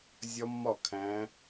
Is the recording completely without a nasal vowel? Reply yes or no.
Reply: no